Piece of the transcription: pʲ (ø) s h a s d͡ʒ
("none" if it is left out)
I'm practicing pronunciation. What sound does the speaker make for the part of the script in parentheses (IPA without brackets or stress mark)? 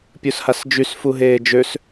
u